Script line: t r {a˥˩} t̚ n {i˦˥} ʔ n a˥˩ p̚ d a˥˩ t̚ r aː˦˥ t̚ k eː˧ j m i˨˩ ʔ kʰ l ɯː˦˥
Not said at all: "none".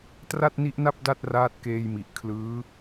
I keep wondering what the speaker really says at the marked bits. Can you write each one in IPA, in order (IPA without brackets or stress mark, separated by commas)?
a˥˩, i˦˥